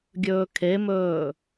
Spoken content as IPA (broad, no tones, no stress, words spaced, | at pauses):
ɡʲɵːkʰemɵː